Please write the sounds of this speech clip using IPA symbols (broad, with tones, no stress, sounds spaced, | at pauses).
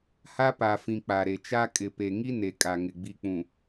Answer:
h a˦ p a˨ f ĩ˨ k͡p a˨ ɾ e˨ t͡ʃ a˦ kʼ ɪ˨ p e˨ ŋ i˦ n e˨ kʼ a˨ ŋ ɪ˨ ɡ͡b i˨ k͡p ũ˨